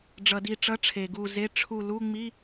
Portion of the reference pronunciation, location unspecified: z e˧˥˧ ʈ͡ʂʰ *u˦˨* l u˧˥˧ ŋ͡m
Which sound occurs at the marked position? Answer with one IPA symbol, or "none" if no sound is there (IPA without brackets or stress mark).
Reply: u˦˨